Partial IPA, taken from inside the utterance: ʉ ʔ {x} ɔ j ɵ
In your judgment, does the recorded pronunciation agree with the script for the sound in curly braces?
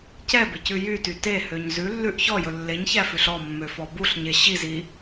no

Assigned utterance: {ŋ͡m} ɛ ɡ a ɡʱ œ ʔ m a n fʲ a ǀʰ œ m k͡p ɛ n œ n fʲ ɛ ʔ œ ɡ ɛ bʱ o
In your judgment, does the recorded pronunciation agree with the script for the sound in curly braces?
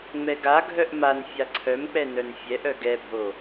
yes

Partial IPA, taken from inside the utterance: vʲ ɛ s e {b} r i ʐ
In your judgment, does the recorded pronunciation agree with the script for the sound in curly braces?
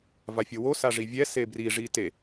yes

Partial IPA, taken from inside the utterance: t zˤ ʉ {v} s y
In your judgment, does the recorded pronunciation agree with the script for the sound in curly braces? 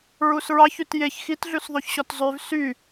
yes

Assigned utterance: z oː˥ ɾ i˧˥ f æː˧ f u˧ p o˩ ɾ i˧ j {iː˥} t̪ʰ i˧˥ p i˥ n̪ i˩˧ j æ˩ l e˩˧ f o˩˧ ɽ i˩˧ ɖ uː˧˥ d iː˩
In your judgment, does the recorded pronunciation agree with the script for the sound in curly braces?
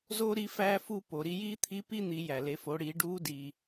yes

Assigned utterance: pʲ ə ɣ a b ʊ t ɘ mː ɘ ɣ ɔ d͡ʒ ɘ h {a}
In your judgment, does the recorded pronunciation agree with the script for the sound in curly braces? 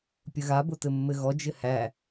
no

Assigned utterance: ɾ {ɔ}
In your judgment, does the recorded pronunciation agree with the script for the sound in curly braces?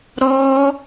yes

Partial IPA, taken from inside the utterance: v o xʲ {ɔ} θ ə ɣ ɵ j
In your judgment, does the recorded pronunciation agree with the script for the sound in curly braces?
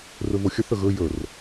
no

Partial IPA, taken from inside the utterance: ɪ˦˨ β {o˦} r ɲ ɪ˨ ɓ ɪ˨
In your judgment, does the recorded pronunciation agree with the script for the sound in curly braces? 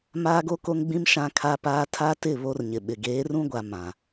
yes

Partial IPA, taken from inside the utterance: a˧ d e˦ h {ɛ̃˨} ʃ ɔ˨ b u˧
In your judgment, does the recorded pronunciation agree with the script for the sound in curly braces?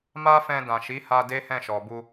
no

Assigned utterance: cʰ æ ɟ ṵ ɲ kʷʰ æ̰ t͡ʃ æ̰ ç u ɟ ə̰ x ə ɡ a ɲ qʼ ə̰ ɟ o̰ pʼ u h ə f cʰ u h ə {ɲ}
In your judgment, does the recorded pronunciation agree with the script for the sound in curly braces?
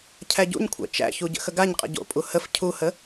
no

